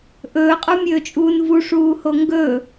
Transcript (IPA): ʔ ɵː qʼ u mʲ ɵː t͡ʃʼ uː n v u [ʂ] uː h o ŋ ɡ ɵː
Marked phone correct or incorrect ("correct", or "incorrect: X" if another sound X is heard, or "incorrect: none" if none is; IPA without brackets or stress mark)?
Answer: correct